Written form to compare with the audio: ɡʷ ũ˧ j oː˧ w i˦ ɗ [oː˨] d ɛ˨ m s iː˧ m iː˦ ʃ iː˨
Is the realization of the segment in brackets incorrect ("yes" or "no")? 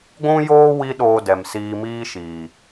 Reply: yes